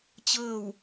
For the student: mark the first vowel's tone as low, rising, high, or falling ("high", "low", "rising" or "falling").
falling